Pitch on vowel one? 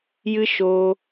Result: high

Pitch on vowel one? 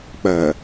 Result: low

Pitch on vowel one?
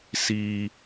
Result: high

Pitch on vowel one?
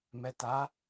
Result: low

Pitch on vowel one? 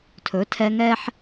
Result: rising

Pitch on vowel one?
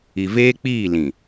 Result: low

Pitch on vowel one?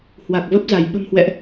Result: low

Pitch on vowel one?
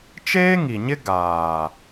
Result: high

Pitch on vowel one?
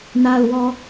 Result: low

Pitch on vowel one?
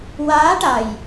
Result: rising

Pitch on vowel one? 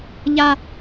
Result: high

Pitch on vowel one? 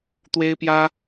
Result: high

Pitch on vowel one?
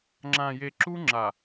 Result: low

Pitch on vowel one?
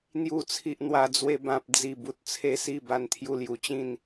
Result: low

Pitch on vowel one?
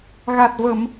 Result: low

